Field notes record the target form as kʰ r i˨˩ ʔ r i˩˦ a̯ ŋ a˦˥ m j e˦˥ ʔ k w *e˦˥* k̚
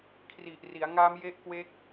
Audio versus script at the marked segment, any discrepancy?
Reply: no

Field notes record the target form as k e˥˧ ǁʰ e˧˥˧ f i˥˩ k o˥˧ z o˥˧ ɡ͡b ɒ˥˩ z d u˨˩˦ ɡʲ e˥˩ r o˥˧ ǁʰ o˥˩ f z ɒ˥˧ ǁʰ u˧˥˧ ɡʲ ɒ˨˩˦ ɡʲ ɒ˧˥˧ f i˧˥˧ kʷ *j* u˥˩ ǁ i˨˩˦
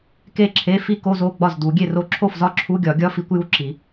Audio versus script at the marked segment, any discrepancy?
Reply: no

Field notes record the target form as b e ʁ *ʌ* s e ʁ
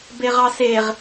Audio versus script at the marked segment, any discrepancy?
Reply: yes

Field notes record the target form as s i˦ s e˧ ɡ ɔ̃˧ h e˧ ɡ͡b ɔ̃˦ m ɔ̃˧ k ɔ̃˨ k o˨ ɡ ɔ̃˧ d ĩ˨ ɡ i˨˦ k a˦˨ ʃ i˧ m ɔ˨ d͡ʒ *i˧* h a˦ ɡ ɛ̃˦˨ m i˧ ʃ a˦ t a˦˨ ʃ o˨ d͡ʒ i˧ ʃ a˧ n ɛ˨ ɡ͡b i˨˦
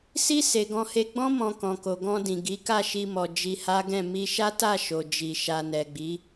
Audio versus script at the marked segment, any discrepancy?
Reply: no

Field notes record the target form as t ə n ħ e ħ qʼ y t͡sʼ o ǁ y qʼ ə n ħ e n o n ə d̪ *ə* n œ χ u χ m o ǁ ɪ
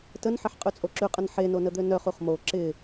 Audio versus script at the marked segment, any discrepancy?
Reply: yes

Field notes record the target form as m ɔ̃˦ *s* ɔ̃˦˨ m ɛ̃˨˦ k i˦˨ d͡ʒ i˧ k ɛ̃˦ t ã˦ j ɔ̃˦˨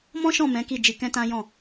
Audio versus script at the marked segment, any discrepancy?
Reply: yes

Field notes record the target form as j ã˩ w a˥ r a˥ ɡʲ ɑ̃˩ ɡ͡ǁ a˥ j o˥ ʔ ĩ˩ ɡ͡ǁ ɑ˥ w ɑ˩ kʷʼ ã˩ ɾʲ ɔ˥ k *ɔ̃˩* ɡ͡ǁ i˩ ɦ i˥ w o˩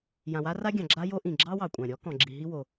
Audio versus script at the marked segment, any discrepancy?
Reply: no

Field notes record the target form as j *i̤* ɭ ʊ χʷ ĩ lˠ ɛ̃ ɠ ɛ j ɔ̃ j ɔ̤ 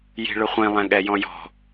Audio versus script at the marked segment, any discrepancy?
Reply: no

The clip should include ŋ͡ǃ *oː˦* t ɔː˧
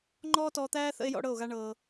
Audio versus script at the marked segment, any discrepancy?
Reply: yes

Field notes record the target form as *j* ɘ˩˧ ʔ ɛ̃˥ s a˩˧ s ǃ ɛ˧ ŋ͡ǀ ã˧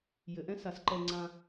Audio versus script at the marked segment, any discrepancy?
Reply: no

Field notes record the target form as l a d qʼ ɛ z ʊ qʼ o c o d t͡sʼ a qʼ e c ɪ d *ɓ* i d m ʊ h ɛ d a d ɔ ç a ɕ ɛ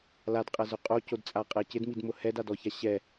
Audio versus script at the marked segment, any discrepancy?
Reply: yes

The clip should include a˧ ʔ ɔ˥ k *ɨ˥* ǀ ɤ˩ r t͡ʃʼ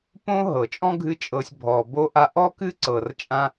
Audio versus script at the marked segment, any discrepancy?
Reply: no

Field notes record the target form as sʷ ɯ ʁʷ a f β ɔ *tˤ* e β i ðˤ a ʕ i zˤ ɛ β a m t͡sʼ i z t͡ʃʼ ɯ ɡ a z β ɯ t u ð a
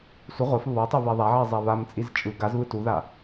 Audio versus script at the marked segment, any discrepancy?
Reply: no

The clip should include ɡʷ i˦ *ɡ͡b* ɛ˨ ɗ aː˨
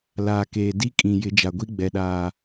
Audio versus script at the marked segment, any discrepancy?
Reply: no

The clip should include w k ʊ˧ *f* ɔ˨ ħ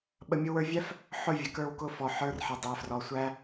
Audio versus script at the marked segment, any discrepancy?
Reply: no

